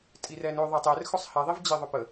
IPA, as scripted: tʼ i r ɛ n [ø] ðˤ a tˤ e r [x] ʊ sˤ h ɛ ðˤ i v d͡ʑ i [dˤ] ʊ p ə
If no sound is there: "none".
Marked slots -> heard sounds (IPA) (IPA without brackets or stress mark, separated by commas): ø, x, ðˤ